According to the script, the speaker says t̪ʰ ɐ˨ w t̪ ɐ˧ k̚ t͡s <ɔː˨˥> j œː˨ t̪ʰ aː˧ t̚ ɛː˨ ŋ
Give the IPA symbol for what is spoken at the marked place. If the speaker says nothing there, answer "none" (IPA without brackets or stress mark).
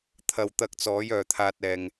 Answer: ɔː˨˥